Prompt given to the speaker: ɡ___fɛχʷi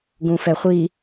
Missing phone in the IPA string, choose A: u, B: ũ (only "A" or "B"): B